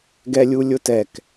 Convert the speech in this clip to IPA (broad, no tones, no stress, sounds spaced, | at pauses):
ɡ ɛ lʲ u lʲ ʊ t ɛ k